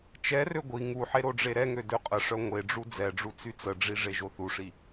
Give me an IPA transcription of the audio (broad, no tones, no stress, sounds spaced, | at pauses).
t͡ʃ ɛ r ø ɡʷ i ŋ u ħ e ɾ o ɖ͡ʐ e ɾ ɛ ŋ ø d ø qʼ ə ʂ œ ŋʷ e ɖ͡ʐ u d͡z ɛ ɖ͡ʐ u t͡s y t͡s ə ɖ͡ʐ i ʐ e ʒ o θ u ʂ i